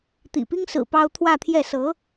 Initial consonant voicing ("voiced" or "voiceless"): voiceless